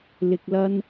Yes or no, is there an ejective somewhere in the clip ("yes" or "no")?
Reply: no